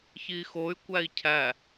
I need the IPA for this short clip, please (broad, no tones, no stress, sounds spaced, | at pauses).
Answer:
ç i x o y̯ kʷ æ i̯ cʰ æ